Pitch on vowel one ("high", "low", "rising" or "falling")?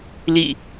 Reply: falling